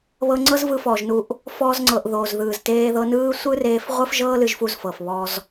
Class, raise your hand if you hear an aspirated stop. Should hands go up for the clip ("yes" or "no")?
no